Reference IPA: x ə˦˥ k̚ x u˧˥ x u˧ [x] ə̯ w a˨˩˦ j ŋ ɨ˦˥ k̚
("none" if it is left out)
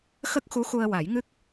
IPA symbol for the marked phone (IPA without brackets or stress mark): none